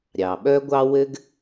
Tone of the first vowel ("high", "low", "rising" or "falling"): low